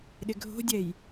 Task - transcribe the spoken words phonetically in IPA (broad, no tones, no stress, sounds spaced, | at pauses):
ɗ ɪ ɡʱ o̤ dʲ ɛ j